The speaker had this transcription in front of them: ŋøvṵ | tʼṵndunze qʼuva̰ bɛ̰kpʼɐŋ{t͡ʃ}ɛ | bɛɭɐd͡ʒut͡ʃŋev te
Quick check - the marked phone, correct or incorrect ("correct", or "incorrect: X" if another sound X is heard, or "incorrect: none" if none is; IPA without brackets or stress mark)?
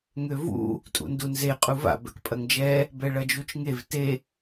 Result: incorrect: d͡ʒ